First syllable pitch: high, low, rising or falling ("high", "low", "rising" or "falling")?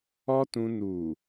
high